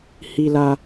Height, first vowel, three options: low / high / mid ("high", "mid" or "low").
high